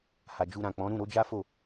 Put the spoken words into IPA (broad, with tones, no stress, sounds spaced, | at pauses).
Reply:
h a˨ d͡ʒ u˧ ɾ ã˨ k͡p ɔ̃˨˦ ɾ ũ˦˨ ɾ o˨˦ d͡ʒ a˦ f o˦˨